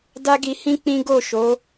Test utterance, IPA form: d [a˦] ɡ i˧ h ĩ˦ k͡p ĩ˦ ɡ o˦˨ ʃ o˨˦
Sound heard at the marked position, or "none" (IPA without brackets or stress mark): a˦